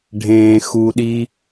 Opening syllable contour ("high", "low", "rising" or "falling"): low